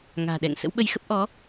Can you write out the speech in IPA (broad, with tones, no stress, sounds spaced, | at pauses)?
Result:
ŋ a̤ː˨˩ ɗ ɛ̰˧˨ ŋ s ə̰˧˥ w ɓ ə˧ j x ə˦˥ p̚ ʔ ɔ˨˦